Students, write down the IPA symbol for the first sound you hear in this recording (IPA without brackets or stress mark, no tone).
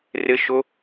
r